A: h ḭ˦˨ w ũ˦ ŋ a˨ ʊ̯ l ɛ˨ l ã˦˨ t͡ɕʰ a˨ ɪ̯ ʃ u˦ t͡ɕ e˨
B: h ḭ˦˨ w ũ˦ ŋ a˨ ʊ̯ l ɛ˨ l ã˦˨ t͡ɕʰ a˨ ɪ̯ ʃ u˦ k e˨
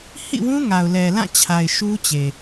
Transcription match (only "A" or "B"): A